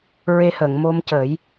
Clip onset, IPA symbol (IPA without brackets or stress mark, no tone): ɹ